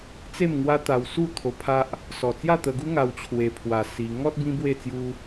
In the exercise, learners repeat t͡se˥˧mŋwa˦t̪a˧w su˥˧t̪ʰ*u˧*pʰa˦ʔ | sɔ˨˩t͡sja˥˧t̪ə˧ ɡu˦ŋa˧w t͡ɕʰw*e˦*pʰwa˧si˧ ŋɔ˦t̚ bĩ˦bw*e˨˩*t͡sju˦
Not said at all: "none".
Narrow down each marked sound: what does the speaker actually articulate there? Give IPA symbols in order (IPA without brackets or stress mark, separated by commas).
o˧, e˧, e˥˧